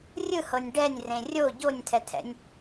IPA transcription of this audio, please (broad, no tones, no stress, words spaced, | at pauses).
rʲɯhɤnʲ ɖɛnʲrẽ rʲo ɟonʲtʰɛtʰɛ̰nʲ